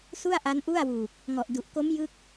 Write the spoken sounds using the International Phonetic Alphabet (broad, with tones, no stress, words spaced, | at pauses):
su˥˩a̯ʔa˦˥nʔu˥˩a̯wuː˨˩k̚ | ŋɔ˨˩ʔdu˨˩ʔko˦˥m jɯ˦˥k̚